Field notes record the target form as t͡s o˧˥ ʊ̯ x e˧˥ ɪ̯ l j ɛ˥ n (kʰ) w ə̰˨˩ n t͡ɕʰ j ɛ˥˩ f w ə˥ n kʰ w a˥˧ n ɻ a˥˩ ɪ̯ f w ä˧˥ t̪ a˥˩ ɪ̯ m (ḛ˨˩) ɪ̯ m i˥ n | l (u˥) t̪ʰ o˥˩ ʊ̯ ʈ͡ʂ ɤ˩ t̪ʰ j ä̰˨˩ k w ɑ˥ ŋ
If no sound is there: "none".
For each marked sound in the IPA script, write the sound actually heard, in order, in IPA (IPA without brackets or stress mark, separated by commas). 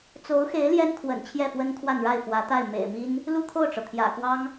kʰ, ḛ˨˩, u˥˧